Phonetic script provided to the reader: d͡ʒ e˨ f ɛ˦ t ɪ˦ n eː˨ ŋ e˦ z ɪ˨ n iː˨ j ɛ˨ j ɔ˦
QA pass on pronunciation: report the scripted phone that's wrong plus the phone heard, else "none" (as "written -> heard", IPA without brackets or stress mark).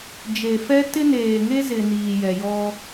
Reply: none